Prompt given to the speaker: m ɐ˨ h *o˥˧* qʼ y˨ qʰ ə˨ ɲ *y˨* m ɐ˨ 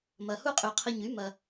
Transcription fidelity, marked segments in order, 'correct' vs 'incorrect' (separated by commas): incorrect, incorrect